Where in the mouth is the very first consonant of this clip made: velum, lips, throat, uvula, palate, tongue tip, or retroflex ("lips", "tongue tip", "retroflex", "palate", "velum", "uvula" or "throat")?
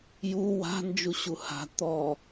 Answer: palate